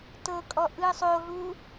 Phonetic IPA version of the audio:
t ɤ kʼ ɔ ʔ ɯ sˤ o ɦ u

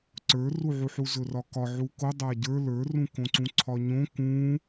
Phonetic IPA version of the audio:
ǀ ə˞ r u ʕ u ħ u z ɵ r ɒ k ɒ ʕ u k o dˤ a ɟ ə˞ l ə˞ r ũ k õ ǀ ũ ǀʰ ɒ ɲ õ k ũː

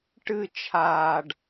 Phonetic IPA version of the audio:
ʈ ɨ t͡ʃʰ aː ɖ

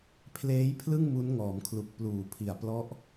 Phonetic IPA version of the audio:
pʰ l eː˦˥ j pʰ l ɯ˥˩ ŋ m u˦˥ n ŋ ɔː˩˦ m kʰ l u˨˩ k̚ p l uː˨˩ pʰ i˨˩ a̯ p l ɔ˦˥ ʔ

